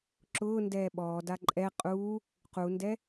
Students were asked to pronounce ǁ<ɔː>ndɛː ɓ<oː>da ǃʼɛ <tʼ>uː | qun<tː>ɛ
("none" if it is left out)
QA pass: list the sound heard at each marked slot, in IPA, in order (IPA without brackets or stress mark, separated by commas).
ʊː, ɔː, qʼ, d